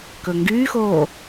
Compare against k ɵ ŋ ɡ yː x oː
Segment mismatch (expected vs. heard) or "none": none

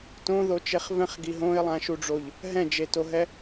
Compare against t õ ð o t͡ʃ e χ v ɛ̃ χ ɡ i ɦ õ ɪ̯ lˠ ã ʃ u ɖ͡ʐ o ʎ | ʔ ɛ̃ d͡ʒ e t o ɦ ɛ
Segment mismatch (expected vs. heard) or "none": ʔ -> ɦ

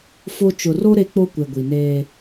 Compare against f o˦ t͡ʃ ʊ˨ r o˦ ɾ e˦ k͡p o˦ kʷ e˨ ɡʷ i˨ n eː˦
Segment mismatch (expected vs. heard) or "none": none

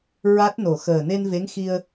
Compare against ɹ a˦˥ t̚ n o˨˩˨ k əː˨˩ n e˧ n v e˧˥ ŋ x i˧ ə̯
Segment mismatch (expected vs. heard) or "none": k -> x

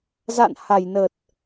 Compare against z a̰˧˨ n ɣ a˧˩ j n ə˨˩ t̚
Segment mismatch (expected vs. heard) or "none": ɣ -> h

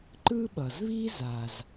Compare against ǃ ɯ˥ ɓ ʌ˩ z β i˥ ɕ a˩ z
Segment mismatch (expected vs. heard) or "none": ɕ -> z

